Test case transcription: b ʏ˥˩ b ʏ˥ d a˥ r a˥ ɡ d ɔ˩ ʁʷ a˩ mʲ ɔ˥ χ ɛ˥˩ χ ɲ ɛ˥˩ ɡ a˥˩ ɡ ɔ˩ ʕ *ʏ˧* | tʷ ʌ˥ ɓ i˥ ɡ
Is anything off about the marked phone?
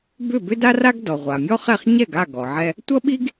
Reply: yes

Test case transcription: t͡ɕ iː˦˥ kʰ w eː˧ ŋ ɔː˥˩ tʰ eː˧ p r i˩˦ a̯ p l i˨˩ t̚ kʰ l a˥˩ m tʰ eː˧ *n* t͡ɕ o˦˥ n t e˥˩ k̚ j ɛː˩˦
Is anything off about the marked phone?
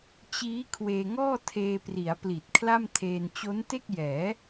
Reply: no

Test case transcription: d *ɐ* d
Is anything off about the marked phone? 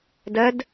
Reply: no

